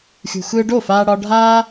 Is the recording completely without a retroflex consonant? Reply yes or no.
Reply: no